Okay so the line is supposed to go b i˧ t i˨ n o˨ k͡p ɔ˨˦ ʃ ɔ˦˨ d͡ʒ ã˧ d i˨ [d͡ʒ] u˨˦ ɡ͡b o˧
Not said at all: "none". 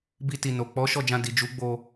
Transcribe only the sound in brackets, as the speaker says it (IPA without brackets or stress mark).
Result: d͡ʒ